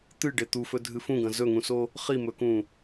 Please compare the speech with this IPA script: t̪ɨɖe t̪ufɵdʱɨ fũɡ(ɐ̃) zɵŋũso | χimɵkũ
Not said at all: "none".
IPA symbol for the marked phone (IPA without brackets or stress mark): ɐ̃